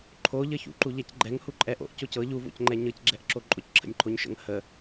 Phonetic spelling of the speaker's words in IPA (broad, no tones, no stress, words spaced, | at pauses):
ǃʰoʎə çṵǃuʎɛcɡ͡ǃɛŋ huǃʼɛʔo̰ʔ cocɤ ʎuvo̰cŋ͡ǃɛ ɲɤcɡ͡ǁɛʔǁo ǃʼocǁʰə̰nʲǃʰoɲʃə̰ŋ hə